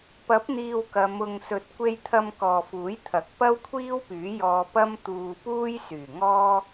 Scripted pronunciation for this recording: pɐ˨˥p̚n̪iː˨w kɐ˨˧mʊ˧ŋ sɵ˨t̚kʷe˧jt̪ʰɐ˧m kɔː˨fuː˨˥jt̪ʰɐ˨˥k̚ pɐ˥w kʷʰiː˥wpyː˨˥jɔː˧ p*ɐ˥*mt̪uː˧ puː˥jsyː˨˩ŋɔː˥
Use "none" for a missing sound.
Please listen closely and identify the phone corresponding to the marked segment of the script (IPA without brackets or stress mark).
ɐ˥